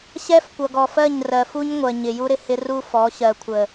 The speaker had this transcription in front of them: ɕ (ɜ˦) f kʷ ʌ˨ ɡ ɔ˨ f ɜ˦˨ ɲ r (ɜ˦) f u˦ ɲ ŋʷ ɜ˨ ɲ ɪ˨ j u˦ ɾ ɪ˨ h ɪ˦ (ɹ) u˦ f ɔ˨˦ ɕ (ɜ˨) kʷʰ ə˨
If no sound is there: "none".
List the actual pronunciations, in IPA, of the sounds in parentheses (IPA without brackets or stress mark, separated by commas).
ɛ˦, ɜ˨, r, ɜ˨